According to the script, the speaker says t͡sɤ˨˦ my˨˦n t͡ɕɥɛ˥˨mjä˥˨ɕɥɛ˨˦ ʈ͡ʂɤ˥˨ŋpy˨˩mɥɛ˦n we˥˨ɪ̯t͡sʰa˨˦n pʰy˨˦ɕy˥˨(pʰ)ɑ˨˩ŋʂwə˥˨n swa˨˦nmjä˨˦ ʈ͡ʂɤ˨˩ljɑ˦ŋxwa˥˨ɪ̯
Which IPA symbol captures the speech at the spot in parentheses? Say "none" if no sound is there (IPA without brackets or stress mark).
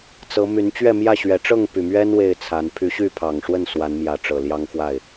pʰ